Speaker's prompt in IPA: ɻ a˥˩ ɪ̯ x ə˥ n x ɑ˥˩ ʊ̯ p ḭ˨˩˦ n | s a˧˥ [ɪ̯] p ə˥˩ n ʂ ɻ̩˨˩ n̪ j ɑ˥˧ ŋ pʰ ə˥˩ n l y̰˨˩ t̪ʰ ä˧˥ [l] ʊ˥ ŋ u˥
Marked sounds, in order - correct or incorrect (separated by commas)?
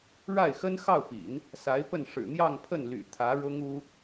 correct, incorrect